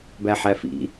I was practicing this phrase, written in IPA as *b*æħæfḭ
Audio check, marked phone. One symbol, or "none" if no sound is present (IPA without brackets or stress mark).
b